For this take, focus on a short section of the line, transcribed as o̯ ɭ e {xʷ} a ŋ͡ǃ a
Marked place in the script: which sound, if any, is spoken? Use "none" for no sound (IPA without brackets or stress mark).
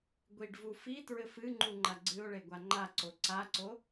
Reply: ɡʷ